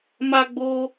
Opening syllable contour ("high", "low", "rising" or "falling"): high